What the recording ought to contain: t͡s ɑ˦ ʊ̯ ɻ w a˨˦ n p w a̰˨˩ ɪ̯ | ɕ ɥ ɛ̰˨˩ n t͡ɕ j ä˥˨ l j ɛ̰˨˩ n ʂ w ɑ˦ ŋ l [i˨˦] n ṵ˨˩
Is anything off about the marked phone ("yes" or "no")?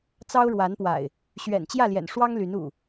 yes